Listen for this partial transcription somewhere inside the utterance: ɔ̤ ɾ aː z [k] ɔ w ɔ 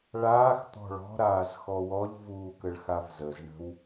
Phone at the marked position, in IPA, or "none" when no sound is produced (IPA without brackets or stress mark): x